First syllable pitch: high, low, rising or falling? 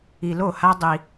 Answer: low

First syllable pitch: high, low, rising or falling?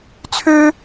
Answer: high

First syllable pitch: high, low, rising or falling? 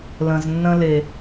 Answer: low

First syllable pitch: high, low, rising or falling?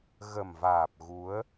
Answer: low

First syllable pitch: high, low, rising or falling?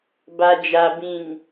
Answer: low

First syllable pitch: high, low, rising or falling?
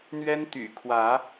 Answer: high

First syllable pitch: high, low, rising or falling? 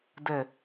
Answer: falling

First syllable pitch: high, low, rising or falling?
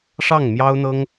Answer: falling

